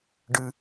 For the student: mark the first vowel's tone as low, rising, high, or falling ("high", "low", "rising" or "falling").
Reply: low